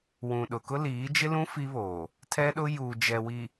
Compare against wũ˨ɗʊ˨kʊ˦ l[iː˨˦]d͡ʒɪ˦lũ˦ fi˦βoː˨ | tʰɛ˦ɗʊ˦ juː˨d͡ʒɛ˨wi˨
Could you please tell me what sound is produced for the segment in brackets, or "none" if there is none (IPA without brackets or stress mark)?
iː˨˦